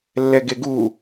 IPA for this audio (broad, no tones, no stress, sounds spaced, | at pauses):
lː ɛ ɡ e ɡ u